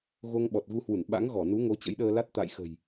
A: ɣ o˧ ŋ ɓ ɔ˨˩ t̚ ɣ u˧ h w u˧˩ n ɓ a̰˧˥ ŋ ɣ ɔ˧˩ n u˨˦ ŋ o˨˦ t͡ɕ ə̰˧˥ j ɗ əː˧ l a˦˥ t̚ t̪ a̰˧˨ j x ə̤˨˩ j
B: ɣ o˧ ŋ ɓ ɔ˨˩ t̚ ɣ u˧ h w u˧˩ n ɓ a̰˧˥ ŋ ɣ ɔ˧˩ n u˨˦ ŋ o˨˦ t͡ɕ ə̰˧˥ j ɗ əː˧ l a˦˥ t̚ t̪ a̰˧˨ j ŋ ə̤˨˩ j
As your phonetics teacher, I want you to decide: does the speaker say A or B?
A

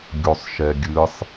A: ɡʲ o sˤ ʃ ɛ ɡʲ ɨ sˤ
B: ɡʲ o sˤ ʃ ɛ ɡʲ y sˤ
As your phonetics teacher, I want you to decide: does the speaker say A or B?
A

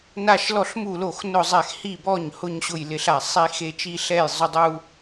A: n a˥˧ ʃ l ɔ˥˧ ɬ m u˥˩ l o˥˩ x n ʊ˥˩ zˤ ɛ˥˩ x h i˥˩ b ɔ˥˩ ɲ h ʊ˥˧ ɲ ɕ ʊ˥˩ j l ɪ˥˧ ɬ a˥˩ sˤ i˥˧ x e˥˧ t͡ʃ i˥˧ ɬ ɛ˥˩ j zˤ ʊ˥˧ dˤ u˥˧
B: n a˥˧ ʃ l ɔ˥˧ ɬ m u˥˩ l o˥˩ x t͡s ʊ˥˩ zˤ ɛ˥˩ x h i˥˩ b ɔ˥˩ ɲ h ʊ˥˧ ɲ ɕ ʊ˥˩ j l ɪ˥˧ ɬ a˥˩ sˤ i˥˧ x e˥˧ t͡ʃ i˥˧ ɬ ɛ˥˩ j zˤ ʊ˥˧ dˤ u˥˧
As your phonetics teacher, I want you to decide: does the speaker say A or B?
A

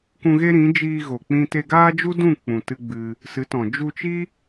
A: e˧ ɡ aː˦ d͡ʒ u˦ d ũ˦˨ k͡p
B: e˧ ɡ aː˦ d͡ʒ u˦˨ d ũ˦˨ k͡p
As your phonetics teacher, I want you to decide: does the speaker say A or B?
A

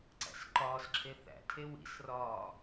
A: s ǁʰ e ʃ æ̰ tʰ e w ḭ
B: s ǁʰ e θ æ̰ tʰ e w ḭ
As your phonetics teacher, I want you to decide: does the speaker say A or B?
B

